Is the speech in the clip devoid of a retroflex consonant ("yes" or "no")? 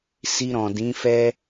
yes